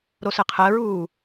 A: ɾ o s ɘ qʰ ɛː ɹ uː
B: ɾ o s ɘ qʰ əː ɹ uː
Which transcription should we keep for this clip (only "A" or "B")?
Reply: B